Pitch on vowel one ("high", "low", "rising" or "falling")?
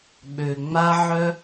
low